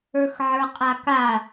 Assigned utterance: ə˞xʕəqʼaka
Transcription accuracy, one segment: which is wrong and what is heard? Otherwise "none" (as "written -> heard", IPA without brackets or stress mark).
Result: ə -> ə˞